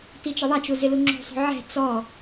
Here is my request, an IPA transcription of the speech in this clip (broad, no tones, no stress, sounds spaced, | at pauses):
t i t͡ʃ ɪ ðˤ a t͡ʃ u z ɪ l u ŋ͡ǁ o̤ sˤ o̤ ʕ ɛ̤ t͡s ɔ